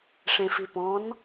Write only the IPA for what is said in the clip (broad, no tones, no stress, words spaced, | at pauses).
ʂẽfipɔ̃n